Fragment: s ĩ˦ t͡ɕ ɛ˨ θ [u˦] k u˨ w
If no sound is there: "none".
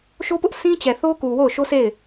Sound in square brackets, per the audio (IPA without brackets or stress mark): o˦